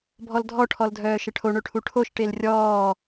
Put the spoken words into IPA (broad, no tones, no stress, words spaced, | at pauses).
bʱɔldʱɔʈʰɔl dʱœːʃəʈʰo ɳɵʈʰuʈʰoʃ ʈelrʲɔː